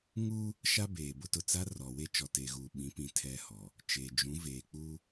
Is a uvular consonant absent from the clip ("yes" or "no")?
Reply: yes